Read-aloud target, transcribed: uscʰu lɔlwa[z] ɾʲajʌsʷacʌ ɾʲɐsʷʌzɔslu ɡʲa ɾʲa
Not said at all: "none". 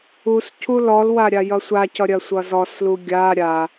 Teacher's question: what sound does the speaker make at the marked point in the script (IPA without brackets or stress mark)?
none